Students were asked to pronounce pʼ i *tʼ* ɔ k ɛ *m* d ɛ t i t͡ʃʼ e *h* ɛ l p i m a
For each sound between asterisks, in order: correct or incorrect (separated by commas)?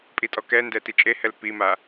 correct, incorrect, correct